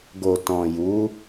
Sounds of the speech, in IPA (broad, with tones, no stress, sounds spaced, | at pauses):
ɡ o˨ t ɔ̃˨ j u˨˦